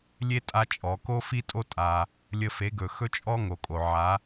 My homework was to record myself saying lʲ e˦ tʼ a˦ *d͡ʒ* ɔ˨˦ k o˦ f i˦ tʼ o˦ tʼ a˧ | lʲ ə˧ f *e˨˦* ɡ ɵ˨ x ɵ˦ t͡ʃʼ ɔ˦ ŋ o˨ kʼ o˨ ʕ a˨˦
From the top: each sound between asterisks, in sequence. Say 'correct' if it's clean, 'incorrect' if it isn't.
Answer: incorrect: t͡ʃʼ, correct

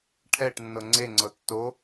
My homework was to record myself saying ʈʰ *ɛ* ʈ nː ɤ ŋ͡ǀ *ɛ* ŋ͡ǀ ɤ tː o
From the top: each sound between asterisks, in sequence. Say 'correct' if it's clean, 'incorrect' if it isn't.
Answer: correct, incorrect: e

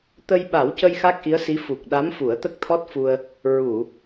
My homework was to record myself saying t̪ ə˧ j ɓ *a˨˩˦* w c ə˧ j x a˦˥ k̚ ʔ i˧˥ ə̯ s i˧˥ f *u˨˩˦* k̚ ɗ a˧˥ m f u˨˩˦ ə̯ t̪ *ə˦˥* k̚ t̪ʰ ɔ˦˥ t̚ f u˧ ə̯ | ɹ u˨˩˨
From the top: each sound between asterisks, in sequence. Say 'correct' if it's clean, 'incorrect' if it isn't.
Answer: correct, incorrect: u˨˩, correct

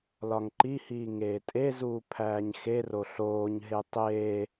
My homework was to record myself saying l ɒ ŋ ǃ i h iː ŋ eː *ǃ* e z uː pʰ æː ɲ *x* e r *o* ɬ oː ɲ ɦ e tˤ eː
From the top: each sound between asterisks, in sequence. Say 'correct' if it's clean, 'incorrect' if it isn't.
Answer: incorrect: tʼ, correct, correct

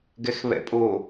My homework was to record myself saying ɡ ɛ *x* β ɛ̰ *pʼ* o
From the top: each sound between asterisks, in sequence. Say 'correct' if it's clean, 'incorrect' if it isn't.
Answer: correct, correct

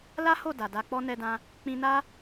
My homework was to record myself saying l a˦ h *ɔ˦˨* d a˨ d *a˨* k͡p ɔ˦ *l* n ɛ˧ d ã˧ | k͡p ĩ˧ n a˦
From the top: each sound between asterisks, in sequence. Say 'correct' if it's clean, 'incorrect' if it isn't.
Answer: incorrect: o˦˨, incorrect: a˧, incorrect: none

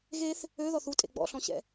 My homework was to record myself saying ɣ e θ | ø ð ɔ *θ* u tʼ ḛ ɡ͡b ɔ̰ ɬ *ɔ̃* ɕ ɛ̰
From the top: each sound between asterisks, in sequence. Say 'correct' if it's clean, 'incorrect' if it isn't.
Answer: correct, correct

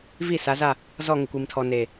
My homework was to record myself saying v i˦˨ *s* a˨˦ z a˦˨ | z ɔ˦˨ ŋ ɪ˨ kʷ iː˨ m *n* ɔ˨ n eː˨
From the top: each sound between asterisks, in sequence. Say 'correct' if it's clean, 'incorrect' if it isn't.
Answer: correct, incorrect: tʰ

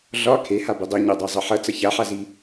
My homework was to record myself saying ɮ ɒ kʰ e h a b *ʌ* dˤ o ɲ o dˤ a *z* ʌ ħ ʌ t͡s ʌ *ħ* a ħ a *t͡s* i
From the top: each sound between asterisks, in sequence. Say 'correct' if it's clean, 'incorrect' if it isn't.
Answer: incorrect: ə, incorrect: zˤ, incorrect: ç, incorrect: z

